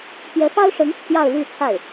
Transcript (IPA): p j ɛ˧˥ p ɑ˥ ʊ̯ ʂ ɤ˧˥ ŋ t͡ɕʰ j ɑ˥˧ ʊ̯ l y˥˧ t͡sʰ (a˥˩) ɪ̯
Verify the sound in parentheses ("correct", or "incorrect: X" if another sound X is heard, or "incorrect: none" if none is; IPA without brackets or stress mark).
correct